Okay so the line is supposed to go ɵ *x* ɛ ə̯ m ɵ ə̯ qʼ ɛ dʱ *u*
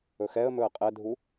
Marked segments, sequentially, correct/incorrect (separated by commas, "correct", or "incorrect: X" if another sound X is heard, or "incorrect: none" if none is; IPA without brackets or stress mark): correct, correct